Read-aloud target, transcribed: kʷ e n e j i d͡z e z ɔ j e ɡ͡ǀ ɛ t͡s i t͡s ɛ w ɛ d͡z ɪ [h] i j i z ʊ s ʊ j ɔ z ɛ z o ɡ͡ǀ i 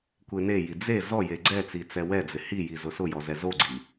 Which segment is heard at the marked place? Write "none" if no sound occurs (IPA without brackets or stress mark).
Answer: h